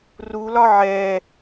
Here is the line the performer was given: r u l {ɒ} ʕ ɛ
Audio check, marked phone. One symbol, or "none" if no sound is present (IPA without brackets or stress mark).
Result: ɒ